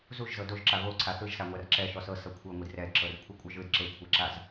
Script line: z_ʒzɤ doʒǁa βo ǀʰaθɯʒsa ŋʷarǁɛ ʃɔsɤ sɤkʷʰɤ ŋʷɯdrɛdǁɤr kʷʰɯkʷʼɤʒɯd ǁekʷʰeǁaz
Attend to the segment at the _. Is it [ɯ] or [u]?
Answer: u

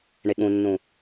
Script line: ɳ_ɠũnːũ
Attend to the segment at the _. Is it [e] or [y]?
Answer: e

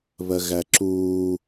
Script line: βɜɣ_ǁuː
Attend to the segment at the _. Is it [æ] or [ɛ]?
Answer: æ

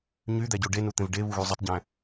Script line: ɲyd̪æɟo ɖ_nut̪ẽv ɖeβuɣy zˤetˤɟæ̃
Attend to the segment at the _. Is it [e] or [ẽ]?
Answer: e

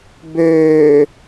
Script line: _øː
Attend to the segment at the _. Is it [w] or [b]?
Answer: b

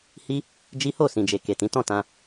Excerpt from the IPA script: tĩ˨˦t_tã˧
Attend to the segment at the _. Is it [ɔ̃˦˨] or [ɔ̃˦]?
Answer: ɔ̃˦˨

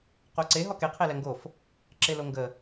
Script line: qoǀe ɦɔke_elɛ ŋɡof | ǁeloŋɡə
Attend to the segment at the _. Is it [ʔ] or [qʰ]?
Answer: qʰ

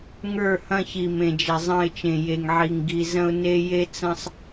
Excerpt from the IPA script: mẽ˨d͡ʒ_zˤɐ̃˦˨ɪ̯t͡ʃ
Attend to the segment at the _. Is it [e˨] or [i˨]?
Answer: e˨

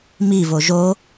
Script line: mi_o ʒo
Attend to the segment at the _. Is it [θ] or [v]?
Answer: v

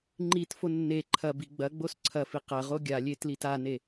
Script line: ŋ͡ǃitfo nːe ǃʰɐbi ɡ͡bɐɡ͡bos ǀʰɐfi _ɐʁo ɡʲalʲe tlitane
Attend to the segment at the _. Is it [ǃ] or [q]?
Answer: q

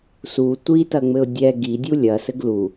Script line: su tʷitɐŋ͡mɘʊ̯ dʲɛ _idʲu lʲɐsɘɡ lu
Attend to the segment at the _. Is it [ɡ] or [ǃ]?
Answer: ɡ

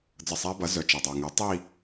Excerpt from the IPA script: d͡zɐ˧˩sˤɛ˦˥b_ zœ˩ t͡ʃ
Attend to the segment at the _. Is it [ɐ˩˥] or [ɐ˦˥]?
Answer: ɐ˩˥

